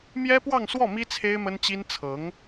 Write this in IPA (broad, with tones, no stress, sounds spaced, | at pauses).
m j ɛ˥ p w ɑ˥˧ ŋ s w ɔ˥˩ m i˥ t͡sʰ e˥ ɪ̯ m ə˥ n t͡ɕ i˥ n t͡sʰ ɤ˧˥ ŋ